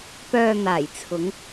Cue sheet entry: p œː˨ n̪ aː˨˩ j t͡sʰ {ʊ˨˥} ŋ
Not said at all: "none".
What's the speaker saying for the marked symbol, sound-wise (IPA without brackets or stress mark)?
ʊ˨˧